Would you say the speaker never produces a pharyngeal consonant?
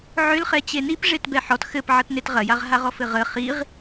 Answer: no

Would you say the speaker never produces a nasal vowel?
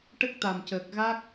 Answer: yes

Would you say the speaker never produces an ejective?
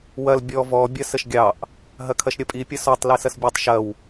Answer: no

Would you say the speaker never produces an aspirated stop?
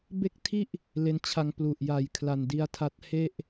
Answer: no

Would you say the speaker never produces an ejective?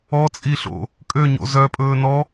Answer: no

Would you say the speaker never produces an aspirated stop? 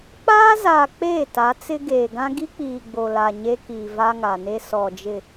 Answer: yes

